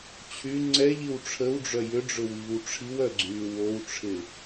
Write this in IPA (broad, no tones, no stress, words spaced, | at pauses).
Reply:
t͡ɕʰy ŋ͡ǀɛʎiw ʈ͡ʂʰəwɖ͡ʐœ jʏɖ͡ʐʊwiːw ʈ͡ʂʰiwœɡ͡ǀyː wowʈ͡ʂʰɪ